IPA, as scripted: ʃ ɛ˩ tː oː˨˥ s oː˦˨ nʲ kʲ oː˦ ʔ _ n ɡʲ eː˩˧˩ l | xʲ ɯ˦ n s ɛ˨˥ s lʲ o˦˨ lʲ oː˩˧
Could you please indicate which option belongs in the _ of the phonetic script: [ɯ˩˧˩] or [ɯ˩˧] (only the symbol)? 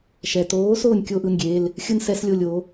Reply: ɯ˩˧˩